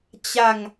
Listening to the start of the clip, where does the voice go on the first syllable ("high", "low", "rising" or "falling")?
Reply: falling